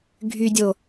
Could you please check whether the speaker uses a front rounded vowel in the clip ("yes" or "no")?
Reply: yes